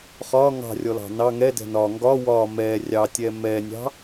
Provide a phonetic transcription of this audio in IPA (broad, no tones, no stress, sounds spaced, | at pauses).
χ ɒ ŋ ɑ̤ rʲ ɔ l ɑ̤ n ɑ ŋ ɛ d ɛ̤ n ɒ ŋ ɡ ɒ w ɒ m ɛ rʲ ɑ tʲ ɛ m ɛ nʲ ɑ̤